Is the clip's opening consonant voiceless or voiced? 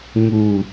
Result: voiced